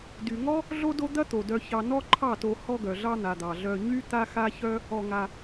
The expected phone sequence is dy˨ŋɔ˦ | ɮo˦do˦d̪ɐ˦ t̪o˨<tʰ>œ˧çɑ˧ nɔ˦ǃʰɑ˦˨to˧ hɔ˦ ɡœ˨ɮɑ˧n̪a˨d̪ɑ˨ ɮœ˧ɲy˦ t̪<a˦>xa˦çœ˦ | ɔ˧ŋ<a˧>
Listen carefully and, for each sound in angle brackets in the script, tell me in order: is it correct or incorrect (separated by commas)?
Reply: incorrect, correct, correct